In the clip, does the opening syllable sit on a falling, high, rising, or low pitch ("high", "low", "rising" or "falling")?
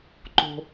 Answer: low